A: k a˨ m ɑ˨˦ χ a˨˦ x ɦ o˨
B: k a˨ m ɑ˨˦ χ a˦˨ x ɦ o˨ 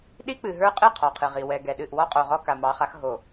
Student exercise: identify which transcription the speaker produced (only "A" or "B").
A